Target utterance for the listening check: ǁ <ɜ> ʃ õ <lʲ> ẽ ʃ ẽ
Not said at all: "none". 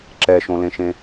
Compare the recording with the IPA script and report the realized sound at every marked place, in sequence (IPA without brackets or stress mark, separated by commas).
ɛ, l